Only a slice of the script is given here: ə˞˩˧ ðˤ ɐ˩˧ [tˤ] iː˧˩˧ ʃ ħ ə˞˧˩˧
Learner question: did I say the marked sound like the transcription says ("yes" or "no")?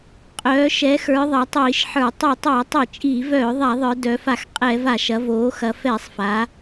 yes